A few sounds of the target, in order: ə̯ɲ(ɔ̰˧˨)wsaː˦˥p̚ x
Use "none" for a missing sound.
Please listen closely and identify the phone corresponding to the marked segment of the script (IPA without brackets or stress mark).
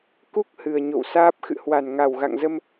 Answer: o̰˧˨